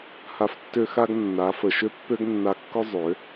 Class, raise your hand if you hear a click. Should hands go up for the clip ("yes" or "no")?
no